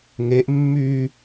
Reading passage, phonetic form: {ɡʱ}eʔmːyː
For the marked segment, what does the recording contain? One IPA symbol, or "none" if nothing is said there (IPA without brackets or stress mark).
ŋ